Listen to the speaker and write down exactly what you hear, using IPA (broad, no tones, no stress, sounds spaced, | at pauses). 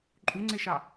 ǃʼ u ŋ͡ǀ e ʃ ɑ